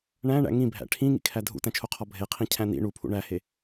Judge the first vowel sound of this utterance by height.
low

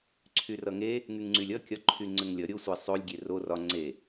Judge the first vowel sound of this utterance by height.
high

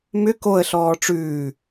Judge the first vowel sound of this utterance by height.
high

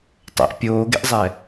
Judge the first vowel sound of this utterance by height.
mid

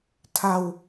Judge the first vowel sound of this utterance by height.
low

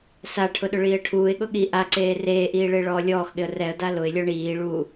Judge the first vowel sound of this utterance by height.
low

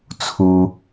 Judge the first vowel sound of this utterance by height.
high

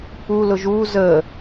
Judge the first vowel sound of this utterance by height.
high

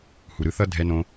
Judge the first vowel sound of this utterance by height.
high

